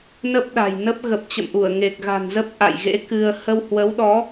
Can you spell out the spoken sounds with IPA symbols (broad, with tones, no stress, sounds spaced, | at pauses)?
n ə˦˥ p̚ ɗ a̤˨˩ j n ə˦˥ p̚ ɣ ə˨˩ p̚ t͡ɕ ə̰˧˨ m ʔ u˧˩ ə̯ ŋ e˨˩ k̚ ɣ a̤˨˩ n z ə˦˥ p̚ ʔ a̰˧˨ j ɣ ḛ˧˥ k ɨ˧ ə̯ h ə˧ w h w ə˨˦ w ɗ ɔ˨˦